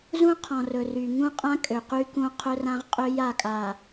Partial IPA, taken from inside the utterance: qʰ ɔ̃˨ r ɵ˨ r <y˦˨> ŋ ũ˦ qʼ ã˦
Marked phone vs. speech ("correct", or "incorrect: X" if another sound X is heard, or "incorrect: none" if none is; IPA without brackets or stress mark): incorrect: y˨